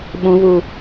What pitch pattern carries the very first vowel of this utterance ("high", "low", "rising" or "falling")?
high